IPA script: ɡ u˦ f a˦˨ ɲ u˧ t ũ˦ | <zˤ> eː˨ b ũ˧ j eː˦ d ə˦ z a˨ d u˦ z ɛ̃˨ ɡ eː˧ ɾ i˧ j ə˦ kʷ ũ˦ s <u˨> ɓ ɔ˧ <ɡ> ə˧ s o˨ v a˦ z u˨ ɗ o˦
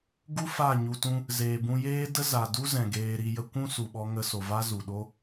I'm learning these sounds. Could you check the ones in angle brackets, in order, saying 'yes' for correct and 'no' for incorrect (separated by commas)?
no, yes, no